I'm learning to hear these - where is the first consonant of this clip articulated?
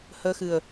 throat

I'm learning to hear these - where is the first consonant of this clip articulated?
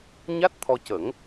palate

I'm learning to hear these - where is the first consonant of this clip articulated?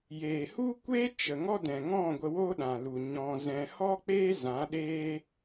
palate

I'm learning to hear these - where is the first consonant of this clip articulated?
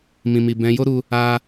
lips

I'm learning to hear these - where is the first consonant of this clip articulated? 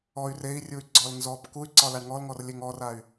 tongue tip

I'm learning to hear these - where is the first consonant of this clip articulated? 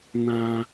tongue tip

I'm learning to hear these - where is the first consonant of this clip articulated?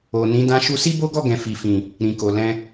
tongue tip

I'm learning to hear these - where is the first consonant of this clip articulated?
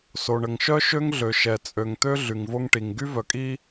tongue tip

